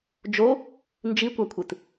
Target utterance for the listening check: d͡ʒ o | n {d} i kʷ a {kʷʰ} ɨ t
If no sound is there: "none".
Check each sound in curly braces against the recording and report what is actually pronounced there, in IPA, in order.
d͡ʒ, kʷʰ

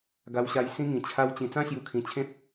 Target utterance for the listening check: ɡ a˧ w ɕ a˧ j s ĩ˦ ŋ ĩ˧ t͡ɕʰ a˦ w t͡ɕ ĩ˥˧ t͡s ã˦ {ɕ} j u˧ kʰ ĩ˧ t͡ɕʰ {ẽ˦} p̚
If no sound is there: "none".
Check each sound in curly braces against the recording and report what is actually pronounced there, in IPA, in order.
ɕ, ẽ˦

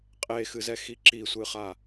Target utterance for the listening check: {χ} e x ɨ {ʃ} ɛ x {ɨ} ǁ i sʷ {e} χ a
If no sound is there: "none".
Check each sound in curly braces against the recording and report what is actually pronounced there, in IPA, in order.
qʼ, z, i, ɨ

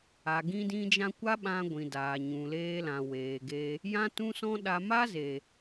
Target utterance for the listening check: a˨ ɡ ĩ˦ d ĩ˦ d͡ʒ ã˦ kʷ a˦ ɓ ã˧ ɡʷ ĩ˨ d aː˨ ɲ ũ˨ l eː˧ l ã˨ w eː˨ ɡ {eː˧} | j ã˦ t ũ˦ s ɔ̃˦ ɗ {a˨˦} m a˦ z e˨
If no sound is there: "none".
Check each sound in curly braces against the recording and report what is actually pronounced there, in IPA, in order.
e˧, a˧

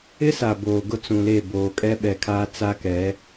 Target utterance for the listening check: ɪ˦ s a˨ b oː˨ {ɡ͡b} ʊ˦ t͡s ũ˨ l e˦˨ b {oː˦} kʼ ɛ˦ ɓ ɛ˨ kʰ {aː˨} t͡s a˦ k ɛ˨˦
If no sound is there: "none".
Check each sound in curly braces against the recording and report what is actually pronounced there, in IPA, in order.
ɡ, oː˨, aː˦

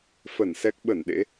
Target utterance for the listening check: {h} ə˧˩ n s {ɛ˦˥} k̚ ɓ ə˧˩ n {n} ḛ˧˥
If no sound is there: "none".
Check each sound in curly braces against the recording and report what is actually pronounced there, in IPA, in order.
f, ɛ˦˥, ɗ

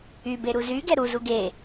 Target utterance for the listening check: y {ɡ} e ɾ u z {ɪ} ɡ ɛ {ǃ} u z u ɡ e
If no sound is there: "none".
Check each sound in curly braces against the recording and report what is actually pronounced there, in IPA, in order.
b, y, ɾ

